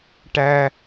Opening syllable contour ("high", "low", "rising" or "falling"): high